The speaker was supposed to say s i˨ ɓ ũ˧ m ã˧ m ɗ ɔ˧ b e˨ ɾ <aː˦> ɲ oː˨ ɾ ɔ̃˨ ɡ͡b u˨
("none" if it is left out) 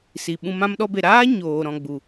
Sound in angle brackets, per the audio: aː˦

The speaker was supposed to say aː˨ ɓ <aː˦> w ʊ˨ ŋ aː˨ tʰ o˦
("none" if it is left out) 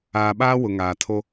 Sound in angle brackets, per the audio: aː˦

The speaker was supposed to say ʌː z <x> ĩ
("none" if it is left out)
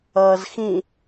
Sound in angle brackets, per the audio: x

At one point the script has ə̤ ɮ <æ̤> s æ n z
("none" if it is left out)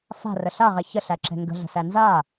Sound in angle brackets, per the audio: ə̤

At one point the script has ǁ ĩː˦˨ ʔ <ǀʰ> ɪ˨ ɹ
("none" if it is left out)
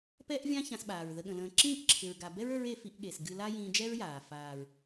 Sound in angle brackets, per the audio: ǁʰ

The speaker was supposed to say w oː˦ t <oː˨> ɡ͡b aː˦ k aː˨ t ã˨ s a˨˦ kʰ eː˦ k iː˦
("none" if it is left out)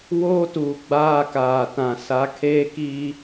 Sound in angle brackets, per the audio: uː˨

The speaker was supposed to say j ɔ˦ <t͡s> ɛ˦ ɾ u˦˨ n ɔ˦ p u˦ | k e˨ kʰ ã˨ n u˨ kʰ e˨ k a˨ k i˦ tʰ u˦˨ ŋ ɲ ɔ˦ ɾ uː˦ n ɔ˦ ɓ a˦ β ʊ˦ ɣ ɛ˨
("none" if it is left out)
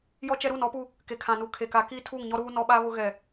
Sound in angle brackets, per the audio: t͡ʃ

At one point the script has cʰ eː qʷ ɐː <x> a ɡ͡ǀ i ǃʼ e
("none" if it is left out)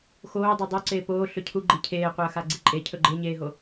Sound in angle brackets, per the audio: x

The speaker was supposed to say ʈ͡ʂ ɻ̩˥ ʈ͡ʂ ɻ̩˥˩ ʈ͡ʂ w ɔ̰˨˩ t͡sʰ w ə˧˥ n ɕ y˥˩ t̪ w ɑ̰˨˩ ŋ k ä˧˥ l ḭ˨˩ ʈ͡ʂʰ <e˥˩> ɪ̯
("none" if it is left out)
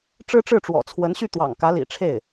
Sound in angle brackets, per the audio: e˥˩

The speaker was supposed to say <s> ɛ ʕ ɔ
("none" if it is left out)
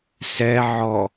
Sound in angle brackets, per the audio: s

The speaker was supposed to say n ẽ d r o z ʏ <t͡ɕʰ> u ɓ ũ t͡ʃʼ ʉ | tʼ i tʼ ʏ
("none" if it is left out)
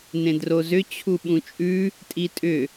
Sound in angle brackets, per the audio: t͡ɕʰ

